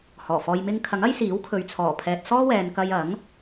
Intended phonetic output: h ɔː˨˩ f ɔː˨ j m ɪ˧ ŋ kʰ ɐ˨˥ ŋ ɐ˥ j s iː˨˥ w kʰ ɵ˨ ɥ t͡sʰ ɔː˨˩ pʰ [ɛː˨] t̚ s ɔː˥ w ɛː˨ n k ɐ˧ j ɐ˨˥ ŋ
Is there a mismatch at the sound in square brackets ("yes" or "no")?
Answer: no